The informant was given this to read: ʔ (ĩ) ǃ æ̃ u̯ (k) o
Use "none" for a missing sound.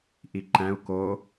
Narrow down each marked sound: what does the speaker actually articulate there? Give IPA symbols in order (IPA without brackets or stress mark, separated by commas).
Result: i, k